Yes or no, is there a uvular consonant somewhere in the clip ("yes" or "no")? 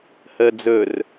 no